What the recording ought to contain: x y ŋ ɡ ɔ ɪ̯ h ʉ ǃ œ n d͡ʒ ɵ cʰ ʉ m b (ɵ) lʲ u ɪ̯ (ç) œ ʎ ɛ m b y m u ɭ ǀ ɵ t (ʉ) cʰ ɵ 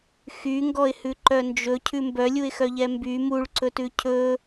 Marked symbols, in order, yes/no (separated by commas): no, no, yes